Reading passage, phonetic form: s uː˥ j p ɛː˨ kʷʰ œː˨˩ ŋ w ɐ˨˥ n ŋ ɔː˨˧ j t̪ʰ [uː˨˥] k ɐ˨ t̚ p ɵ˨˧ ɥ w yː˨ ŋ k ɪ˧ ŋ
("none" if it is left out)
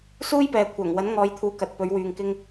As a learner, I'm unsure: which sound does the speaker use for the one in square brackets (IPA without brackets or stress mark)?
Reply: uː˨˥